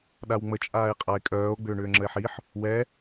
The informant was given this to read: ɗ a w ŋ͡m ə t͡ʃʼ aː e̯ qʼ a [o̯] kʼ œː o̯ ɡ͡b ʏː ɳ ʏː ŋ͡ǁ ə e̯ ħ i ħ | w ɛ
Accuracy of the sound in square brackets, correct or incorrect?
incorrect